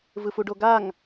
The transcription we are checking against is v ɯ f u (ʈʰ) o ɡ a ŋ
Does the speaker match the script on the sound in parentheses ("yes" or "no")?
no